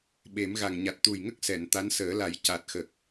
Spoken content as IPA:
ɓ e˨˩˦ m ɣ a˨˩ ŋ ɲ a˨˩ t̚ t̪ u˨˩ j ŋ ə˦˥ k̚ s ɛ˨˩˨ n t̪ a˧˥ n s əː˨˩˦ l a˨˩˦ j c a˨˩ t̚ x ə˨˩ k̚

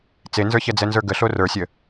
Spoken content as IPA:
t͡s e n z ə˞ ç ɛ d͡z ɛ n z ə˞ ɡ ə ɬ o r ə˞ sʲ ə

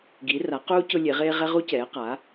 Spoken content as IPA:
ɡ i˩˧ r a˩˧ q uː˧ c ʊ˧ lʲ e˩˧ ʁ eː˧ ʁ ɛ˧ ʁ u˧ c ɛː˩˧ q a˩˧

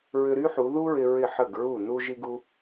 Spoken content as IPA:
ɹ ʏ˧ ɾ y˥ ħ u˩˧ ð u˥ ɹ ɪ˧ ɹ ɪ˧˩ ħ ə˧˩ ɡ ɹ u˧˩ n u˧ ʒ i˥ ɡ u˥

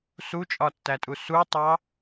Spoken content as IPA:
s u t͡ʃʼ ɒ tː æ tʼ u s u tˤ ɑ

